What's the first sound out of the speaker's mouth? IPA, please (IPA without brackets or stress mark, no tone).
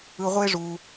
ɯ